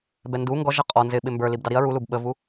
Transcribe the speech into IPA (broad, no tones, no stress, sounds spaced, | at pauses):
b ɛ n d u ŋ ɡ ɔ ʒ ʌ qʼ ɔ n z ɪ ɓ ɪ m b ə˞ l i b d ɑ ɾ i ɐ̯ ɹ u l u b ɓ ə v u